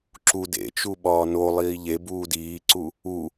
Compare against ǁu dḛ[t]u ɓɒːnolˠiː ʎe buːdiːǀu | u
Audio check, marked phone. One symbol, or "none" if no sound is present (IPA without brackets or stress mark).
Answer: t͡ʃ